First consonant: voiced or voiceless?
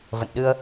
voiced